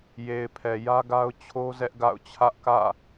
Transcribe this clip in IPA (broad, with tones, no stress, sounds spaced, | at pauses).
j e˨ ɪ̯ pʰ ɛ˨ j ä˦ ɡ a˦ ʊ̯ t͡ɕʰ o˦ z ɛ˦ ʔ ɡ a̰˦˨ ʊ̯ t͡ɕʰ ä˦ ʔ k ä̰˦˨